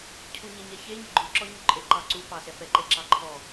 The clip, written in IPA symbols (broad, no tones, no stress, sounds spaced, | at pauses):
cʰ u ɲ e ɲ ɛ ç e ɲ ɛ ɡ͡ǃ u ǁ ɔ ɲ u ǃʼ e ǃ ɑ ǀ u p ɑ s ɛ p ɛ ǃ e ǁ ɑ ǃʰ ɔ